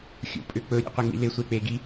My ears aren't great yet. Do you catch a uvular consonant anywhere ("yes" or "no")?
yes